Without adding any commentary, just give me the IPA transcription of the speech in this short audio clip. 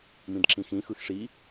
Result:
mĩdǁĩxĩ xɯxʂi

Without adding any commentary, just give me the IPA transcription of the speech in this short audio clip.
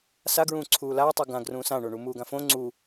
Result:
saɡɹũː ǀʰuːlaːtˤu ɡãɡrũː sãɳo ɳumuːɡãfõ ŋ͡ǀu

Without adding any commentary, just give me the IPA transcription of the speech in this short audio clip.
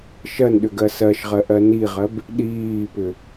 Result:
ʃɜnɗʏɡɜ sɜʃʁɜʔɜ niʁɜb | ɗiːpʏ

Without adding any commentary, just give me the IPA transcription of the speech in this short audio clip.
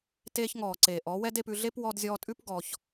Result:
teː˧çŋɔː˨ǀeː˨ʔɔ˨˦ wɛ˦de˧pʉ˧ɮe˦p wɔ˧dzʲɔː˧tʼʉ˦p ɡɔ˧ç

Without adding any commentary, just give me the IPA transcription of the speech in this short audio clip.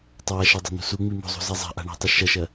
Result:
tˤaʃɐ dˤa̤n̪ṳsuŋ͡mi mo̤zˤṳ zazˤa̤ʔa̤ ɳa̤tˤi ʃɐʃɐ

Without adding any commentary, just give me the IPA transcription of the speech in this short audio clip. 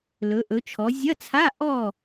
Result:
lɵ˩˧ʔɵ˩˧t͡ʃʰɔ˩˧ zʲɐ˧˥˧t͡sʰa˧˥˧ ʔɔ˥˨

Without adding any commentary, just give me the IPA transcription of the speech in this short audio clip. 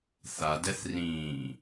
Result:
θa dɛθrĩː

